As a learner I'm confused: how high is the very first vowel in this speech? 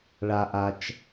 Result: low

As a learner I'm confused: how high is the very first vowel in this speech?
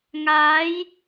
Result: low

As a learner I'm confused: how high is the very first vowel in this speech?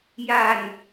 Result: low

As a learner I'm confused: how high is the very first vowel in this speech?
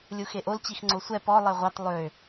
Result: high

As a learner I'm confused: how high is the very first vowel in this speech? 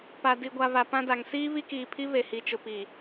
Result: low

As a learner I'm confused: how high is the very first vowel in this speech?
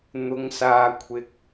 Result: high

